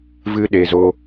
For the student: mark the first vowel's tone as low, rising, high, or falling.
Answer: high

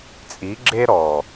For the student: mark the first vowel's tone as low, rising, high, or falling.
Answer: rising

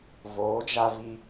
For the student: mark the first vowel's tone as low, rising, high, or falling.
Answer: rising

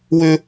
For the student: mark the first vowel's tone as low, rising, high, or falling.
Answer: high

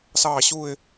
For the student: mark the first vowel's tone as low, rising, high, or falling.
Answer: falling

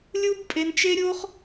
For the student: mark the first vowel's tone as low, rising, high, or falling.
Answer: high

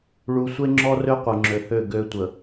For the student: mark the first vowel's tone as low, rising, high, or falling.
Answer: low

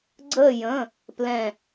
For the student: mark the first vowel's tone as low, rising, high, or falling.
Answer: falling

